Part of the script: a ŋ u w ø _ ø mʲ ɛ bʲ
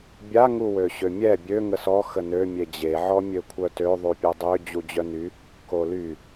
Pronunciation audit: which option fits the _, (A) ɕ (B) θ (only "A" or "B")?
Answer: A